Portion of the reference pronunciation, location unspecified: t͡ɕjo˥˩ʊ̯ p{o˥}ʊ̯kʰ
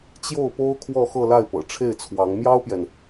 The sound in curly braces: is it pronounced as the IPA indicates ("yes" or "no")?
yes